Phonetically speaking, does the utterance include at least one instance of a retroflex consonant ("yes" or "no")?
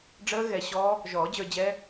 yes